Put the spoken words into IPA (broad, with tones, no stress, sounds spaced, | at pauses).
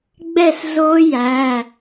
ɡ͡b ɛ˥˨ s z o˦˥ j æ˩˧˩